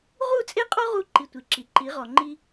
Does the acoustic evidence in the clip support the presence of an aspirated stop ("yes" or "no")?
no